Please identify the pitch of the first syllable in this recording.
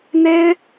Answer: high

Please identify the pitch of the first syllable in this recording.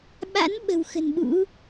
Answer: rising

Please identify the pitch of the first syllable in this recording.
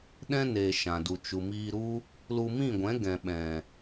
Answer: high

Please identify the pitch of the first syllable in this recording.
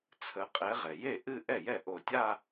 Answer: rising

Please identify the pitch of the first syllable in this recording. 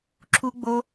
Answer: high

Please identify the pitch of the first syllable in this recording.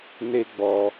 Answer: high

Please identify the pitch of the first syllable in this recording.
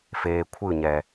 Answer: low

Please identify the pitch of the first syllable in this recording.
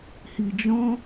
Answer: low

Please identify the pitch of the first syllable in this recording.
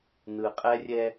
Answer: low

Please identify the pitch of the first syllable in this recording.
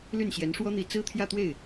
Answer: falling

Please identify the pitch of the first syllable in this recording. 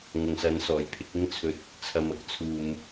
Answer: low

